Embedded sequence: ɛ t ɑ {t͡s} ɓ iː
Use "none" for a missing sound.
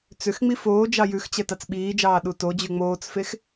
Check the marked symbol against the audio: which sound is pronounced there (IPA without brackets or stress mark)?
t͡s